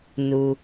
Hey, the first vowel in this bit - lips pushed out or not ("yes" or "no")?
yes